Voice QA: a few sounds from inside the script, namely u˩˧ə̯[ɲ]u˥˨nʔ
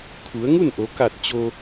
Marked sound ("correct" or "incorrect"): incorrect